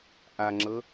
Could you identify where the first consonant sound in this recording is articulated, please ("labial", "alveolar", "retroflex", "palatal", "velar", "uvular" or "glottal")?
glottal